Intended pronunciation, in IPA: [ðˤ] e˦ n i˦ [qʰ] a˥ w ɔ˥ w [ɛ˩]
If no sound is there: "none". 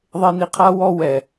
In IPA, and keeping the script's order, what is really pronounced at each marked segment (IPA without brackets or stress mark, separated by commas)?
ðˤ, qʰ, ɛ˩